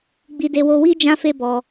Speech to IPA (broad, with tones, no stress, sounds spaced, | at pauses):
ɡ͡b i˧ d e˧ w o˧ w i˦ d͡ʒ ã˦ f e˦ b ɔ˧